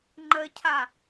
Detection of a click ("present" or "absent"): present